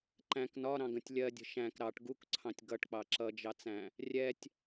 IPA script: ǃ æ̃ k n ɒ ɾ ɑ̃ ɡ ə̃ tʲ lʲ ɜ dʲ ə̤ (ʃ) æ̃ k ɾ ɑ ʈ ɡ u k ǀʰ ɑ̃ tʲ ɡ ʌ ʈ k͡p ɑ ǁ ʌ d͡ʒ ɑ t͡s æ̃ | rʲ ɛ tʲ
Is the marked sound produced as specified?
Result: yes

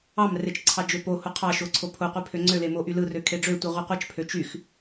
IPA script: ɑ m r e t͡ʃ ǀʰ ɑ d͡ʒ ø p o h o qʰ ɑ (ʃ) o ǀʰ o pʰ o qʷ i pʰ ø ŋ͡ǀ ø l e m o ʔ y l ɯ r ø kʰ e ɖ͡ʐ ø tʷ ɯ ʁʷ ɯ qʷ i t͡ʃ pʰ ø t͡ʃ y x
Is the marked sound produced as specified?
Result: yes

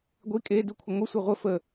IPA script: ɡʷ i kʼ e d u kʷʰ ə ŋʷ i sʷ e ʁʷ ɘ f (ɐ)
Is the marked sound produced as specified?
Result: no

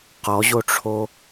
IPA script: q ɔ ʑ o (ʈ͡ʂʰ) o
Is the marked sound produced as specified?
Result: yes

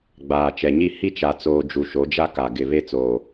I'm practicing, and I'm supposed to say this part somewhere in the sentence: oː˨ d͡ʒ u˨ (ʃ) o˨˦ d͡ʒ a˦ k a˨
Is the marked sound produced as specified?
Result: yes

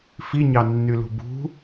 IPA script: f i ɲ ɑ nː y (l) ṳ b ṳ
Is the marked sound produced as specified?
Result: yes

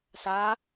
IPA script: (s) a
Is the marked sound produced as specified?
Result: yes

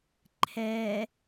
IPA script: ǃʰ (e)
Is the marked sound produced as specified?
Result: no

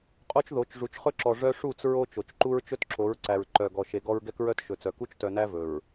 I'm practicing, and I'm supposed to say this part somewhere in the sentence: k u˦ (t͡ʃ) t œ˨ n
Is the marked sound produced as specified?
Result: yes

